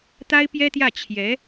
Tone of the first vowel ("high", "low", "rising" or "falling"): high